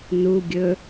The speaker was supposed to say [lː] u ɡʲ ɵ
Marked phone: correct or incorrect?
incorrect